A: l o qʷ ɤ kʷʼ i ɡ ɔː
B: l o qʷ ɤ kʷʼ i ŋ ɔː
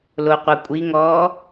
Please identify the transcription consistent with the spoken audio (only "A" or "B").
B